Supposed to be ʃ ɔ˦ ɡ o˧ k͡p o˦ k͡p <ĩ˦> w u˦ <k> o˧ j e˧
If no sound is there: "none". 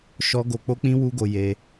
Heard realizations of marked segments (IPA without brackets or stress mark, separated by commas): ĩ˦, ɡ